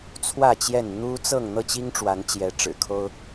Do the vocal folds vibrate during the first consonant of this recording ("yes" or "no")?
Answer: no